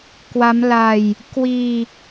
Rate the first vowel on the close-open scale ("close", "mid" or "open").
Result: open